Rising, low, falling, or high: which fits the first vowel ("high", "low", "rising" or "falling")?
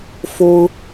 high